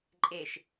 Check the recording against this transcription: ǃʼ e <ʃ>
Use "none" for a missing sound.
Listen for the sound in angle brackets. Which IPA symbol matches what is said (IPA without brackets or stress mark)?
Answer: ʃ